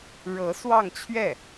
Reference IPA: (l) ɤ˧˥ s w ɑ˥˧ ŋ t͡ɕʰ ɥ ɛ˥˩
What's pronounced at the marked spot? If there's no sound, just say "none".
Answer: ɻ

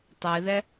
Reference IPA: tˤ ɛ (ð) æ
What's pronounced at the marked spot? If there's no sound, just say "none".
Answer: ð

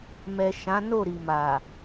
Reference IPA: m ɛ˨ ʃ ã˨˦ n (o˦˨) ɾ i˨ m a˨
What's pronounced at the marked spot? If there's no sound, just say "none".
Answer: o˦˨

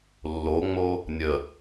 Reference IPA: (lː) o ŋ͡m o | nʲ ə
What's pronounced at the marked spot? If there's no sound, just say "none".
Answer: lː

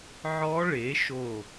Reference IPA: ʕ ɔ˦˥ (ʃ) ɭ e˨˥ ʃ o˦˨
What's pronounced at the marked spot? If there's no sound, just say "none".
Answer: none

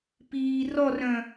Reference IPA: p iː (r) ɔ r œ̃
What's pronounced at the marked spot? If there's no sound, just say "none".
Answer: r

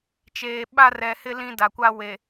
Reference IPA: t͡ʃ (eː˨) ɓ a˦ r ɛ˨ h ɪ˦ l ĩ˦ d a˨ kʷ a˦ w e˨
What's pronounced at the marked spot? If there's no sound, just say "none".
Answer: eː˨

